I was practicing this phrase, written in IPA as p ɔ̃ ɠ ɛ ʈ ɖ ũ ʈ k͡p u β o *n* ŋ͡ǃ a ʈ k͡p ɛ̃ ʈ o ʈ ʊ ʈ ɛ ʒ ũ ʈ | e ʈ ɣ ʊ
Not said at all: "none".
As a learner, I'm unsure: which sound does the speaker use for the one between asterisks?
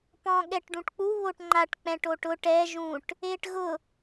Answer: ʈ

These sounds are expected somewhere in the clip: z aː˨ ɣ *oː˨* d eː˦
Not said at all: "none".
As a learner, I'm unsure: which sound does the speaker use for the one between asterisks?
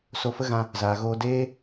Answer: oː˧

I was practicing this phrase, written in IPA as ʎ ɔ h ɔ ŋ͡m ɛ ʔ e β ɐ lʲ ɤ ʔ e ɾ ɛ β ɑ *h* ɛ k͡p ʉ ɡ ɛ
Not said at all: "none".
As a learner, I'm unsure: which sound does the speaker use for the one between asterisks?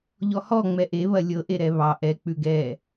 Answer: ʔ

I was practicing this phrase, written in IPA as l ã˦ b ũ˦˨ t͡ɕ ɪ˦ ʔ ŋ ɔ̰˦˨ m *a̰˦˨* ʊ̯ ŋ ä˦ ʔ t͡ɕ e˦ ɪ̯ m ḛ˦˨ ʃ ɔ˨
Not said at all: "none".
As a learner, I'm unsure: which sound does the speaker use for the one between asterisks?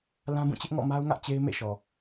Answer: a˦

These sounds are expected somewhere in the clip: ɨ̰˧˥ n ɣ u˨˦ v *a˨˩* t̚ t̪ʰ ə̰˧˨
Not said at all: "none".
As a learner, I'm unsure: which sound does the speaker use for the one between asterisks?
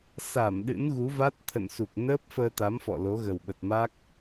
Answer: a˦˥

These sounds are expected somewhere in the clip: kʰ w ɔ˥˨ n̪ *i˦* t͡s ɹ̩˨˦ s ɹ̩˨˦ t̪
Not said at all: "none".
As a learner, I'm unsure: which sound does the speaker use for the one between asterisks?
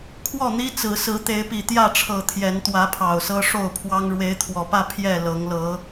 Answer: i˦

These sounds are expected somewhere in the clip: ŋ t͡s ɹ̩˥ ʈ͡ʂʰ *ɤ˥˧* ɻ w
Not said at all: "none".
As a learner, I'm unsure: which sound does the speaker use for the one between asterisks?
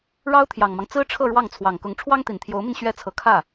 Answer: ɤ˥˧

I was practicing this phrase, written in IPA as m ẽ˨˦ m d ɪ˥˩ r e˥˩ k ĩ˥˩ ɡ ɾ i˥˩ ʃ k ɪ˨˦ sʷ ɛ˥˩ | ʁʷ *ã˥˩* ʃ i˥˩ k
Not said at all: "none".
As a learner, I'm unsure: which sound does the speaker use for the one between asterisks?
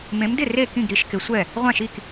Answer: ã˥˩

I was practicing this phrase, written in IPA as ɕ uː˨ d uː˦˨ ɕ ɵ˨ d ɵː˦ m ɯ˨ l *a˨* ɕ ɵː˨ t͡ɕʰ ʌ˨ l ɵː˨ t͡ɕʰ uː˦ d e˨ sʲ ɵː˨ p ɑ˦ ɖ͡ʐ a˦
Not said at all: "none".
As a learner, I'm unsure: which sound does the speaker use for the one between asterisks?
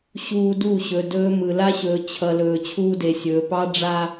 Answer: a˦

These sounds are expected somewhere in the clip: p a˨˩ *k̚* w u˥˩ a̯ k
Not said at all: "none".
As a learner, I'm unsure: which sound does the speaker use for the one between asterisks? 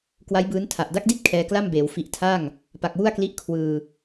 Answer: k̚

